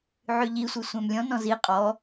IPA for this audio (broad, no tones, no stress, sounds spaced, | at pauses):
ʕ y ʎ i sʷ i sʷ æ̃ m lʲ ɔ̃ n ɔ̃ z i qʼ ɔ